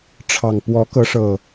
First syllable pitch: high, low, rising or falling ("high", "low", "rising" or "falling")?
low